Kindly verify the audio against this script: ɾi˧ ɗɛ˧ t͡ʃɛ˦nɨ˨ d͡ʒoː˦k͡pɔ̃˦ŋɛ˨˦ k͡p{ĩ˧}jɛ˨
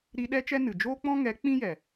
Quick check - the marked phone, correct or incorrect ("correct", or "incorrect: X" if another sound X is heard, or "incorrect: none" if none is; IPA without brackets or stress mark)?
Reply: incorrect: ĩ˦